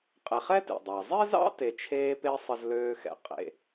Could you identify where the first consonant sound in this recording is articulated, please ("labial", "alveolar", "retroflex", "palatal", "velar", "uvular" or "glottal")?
uvular